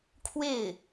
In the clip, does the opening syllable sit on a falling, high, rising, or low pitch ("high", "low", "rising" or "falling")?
falling